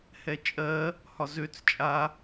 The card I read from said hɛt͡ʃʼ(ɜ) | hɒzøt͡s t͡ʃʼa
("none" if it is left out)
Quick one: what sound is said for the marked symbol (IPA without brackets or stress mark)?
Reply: ɜ